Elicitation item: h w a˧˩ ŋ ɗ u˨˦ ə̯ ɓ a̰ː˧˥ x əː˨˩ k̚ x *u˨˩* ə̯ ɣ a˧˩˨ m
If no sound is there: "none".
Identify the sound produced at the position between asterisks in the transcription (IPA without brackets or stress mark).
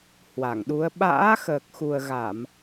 u˨˩